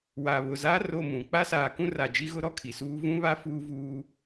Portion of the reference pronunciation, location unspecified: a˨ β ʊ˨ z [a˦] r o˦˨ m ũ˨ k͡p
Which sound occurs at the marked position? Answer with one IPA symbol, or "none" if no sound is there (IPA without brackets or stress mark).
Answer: a˦